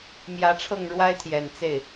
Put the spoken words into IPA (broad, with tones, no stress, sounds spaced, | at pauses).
m j ä˧˥ ʈ͡ʂʰ ɤ˥˩ ŋ ɻ w a˥ ɪ̯ t̪ʰ j ɛ˨˩ n t͡s e˥˩ ɪ̯